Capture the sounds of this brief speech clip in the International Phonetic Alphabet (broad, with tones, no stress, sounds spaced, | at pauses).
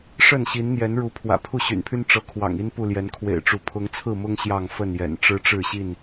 ʂ ə˥˨ n ɕ i˨˦ n n̪ j ɛ˨˦ n ɻ u˨˦ pʰ w ä̰˨˩ pʰ u˥˨ ɕ y̰˨˩ n pʰ y˦ n ʈ͡ʂ ɤ˨˦ kʰ w ɑ̰˨˩ ŋ i˦ n p u˥˨ l j ɛ˨˦ n kʰ w ḛ˨˩ ɪ̯ ʈ͡ʂ u˨˦ pʰ ʊ˨˦ ŋ t͡sʰ ɹ̩˥˨ m ʊ˦ ŋ ɕ j ɑ˥˨ ŋ f ə˥˨ n j ɛ̰˨˩ n ʈ͡ʂ ɻ̩˦ ʈ͡ʂ ɻ̩˥˨ ɕ i˥˨ n